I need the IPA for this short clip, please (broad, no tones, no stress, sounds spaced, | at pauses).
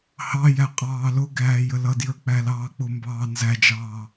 h ɑ j æ qʼ ɑː l ʊ ɡ æː j ə l ʌ d j ə˞ k͡p æ l ɑː k͡p ʊ m b ɑː n z æ d͡ʒ ɑː